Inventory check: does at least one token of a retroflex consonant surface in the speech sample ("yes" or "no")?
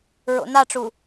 yes